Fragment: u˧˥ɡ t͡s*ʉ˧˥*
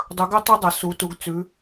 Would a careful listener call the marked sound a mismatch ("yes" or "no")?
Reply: no